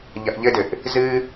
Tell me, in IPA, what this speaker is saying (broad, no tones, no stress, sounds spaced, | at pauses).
ʎ ɐ ʔ ʎ ɘ d ɘ ʔ | z ɨ